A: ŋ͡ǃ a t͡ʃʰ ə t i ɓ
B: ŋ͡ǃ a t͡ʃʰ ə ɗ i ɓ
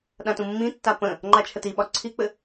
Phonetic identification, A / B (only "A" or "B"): A